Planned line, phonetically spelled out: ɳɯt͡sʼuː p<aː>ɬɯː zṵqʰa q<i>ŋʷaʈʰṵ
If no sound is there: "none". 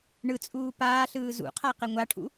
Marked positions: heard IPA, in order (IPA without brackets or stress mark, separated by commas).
aː, e